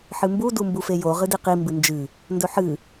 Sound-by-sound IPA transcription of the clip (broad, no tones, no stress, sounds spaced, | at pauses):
ħ ɨ m b u d u m b u f e j o ʁ ɨ d i q i m b ɨ n d͡ʒ ɨ | n d ɵ ħ ɨ